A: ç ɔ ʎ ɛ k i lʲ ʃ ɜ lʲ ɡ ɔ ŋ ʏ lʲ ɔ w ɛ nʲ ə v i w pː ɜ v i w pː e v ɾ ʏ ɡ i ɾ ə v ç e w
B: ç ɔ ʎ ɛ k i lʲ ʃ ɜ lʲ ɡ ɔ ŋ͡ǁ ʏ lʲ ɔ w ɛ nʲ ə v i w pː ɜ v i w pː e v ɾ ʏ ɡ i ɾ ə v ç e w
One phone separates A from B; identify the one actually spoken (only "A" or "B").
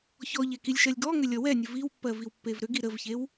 A